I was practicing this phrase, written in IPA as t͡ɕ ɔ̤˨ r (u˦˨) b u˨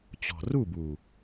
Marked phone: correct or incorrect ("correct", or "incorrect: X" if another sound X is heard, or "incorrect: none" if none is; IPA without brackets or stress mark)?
correct